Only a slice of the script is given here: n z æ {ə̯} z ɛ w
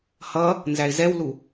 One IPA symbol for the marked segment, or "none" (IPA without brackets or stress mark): ɪ̯